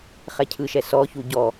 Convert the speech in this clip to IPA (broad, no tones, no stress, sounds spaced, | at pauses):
χ ɛ cʰ ɯ ʃ ɛ s ɔ ç u ɟ ɔ